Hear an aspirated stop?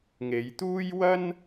no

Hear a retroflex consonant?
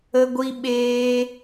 no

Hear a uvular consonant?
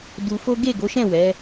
no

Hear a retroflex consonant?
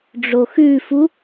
yes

